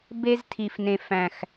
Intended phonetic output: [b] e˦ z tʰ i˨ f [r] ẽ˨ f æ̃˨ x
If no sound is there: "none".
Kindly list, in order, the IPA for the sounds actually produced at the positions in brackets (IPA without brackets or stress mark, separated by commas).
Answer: b, n